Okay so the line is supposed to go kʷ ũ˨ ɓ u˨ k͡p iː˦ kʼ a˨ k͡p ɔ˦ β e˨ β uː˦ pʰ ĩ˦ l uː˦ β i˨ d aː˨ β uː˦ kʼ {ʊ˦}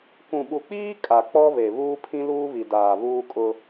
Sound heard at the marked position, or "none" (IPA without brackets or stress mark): ʊ˦